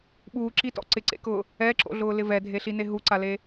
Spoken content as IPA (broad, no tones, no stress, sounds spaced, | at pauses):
ɓ uː ǁ i t ɔ̰ ǀ ɪ ǀ ḛ k ʊː | ɛ ǁ o̰ ɮ ʊː l ɪ v ɛ dʱ e ɬ i n e ɦ u ǀ a l e